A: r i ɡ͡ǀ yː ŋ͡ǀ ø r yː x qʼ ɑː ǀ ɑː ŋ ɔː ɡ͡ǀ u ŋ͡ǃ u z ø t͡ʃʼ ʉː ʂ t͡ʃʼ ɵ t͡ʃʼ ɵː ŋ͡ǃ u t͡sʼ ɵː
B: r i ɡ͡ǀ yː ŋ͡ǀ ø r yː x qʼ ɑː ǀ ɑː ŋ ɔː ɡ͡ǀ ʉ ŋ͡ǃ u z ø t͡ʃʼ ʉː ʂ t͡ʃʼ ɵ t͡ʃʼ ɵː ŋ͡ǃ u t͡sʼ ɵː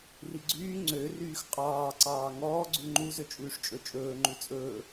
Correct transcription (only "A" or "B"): B